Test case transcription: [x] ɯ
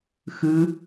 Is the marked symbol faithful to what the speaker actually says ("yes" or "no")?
yes